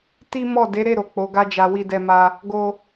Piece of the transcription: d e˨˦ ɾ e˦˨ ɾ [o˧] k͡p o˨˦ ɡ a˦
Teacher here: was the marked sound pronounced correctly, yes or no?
no